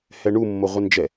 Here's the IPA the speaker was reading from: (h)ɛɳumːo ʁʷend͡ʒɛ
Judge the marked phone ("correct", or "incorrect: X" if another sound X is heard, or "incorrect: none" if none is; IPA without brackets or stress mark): correct